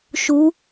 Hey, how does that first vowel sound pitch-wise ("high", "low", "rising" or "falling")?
rising